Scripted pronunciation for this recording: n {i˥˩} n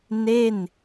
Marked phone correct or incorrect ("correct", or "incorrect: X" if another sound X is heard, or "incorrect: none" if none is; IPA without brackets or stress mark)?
incorrect: e˥˩